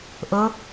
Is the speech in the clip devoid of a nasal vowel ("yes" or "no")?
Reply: yes